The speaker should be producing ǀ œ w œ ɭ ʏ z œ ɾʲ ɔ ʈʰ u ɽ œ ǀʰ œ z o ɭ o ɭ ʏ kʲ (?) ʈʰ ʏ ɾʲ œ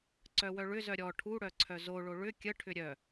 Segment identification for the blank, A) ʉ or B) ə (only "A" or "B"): B